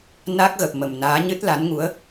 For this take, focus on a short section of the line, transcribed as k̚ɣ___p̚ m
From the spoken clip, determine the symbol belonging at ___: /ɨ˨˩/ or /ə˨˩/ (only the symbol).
ə˨˩